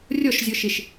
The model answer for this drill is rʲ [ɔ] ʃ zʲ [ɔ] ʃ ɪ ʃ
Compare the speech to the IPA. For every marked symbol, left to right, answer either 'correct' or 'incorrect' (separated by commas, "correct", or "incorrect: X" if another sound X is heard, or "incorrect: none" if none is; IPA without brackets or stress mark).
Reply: correct, correct